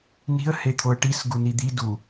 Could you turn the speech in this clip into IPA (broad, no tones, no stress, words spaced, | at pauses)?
ni̤ə̯het̪ʰoə̯ ʈisɡuni d̪i du